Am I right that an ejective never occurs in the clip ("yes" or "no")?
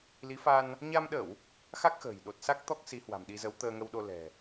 yes